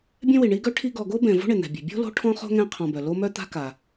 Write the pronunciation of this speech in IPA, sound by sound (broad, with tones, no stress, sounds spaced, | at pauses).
bʲ ɛ̃˥ w i˨ ɳ i˦ ɡ œ˥ ʈʰ i˦ ɡ ɔ˨ ɡ o˥ b ɛ̃˨ v o̤˦ ɳ ɪ˩ n̪ ɛ̤˩ bʲ ɛ̤˩ bʲ o̤˥ l o̤˦ ʈʰ ɔ̃˥ χ o̤˥ ŋ ɛ̃˦ qʰ ɔ̃˨ b œ˩ l o˦ m œ˥ t̪ a̤˦ k a˩